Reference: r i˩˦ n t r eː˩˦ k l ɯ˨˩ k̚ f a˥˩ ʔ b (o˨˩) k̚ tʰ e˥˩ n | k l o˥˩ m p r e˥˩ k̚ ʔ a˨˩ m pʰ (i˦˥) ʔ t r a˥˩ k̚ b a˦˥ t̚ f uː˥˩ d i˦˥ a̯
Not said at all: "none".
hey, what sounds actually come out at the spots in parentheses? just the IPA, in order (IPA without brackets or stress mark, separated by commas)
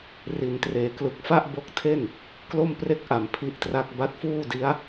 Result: o˦˥, i˦˥